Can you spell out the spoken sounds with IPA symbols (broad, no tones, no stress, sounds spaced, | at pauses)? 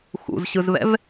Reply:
x ṵ z ɕ ɯ z β ɛ̰ v